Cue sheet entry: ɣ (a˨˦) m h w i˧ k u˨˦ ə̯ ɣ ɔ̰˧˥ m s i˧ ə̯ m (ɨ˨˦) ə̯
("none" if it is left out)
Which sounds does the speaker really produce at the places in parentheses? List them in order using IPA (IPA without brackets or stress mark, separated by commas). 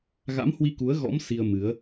a̰˧˥, ɨ˨˦